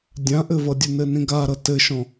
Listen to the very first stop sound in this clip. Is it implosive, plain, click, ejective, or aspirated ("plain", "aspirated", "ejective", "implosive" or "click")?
plain